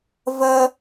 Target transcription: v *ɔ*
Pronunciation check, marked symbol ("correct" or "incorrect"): incorrect